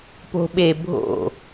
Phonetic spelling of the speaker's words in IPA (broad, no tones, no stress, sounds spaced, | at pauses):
p o̤ ɓ e bʱ o̰